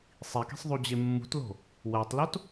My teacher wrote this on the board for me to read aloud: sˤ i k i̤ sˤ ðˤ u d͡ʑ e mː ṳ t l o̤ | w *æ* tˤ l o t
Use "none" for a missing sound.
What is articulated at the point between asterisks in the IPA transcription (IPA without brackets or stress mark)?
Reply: æ